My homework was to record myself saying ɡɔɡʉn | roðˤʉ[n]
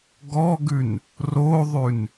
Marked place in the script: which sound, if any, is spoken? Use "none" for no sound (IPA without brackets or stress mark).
n